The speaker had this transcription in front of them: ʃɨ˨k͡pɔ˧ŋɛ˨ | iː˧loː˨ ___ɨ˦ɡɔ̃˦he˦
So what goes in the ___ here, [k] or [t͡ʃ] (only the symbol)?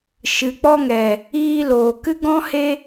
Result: k